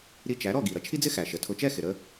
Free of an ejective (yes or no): yes